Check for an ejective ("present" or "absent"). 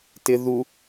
absent